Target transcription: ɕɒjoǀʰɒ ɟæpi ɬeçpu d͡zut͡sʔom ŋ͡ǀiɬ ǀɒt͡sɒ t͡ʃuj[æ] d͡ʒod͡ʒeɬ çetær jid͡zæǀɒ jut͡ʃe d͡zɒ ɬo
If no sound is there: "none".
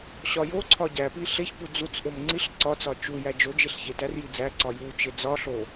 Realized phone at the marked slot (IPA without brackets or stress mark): æ